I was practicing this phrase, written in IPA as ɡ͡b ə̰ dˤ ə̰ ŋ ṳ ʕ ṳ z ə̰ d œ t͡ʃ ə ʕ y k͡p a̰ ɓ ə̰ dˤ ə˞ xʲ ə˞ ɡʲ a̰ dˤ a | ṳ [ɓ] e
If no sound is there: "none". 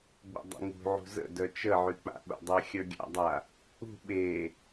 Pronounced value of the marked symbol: ɓ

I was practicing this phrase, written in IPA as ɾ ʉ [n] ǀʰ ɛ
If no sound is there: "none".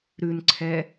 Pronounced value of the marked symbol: n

